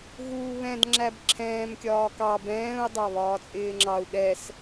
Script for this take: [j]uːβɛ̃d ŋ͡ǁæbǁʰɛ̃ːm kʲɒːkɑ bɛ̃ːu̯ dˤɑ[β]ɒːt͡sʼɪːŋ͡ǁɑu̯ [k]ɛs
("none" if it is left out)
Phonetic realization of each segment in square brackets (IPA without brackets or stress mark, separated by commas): ɣ, β, ɠ